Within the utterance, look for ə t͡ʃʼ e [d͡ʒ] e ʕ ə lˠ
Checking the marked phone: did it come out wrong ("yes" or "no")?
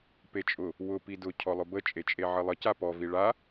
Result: yes